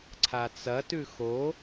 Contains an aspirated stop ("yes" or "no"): yes